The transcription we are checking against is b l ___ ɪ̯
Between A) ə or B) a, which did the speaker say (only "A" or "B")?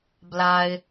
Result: B